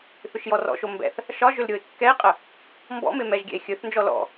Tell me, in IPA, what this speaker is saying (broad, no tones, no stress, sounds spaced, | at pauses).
θ ʏ ʃ j ɔ r ɔ̰ ʃ o m b ɛ̰ θ | ʃ ɒ ʒ ʏ l ɾʲ o e̯ kː ɛ e̯ qʼ ə | m b ɔ̰ m e m ɛ ʒ ɡʲ ɛ̰ e̯ xʲ ɵ θ n d͡ʒ ɔ l ɔ̰